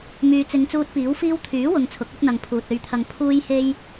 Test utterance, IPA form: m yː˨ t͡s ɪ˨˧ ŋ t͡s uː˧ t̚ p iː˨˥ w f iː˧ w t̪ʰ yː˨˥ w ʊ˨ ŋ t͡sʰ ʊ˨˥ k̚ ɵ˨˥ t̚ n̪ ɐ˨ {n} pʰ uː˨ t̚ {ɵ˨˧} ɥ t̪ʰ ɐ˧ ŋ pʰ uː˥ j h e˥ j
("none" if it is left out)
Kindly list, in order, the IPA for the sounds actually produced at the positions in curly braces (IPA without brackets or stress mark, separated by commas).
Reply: ŋ, ɵ˧